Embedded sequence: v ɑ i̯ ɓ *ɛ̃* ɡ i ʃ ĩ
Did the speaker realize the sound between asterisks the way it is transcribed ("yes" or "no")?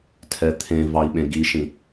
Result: no